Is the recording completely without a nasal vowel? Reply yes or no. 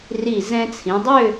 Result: no